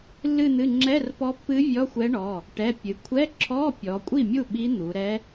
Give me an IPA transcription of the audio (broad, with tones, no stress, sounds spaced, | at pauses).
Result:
lː ɨ˥˧ n̪ ɨ˧˥˧ ŋ͡ǁ ɛ˧˥˧ r p ɔ˧˥ pː ɨ˧˥ vʲ ɔ˧˥˧ xʷ ɛ˧˥ ɳ ɔ˩˧˩ | ʈ ɛ˩˧˩ pʲ ɨ˩˧ kʷʰ ɛ˧˥˧ ǁʰ ɔ˧˥˧ pʲ ɔ˩˧ kʷʼ i˥˩ mʲ u˥˩ ɓ i˧˥ n̪ u˩˧ ɾ ɛ˧˥